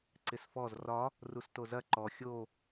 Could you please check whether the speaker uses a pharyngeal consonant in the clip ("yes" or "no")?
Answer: no